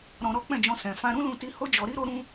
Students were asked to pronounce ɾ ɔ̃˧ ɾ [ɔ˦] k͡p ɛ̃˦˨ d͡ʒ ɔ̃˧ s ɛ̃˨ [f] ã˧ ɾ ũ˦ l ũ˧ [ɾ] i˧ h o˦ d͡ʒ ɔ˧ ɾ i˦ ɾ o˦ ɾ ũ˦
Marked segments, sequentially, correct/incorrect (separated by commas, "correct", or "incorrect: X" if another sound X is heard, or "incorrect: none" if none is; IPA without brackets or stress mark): correct, correct, incorrect: t